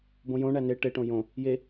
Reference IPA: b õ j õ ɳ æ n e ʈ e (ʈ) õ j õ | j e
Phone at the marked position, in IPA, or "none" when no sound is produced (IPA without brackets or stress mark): ʈ